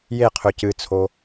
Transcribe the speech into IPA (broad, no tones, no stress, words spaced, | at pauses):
jeqʰø cɨt͡sʰo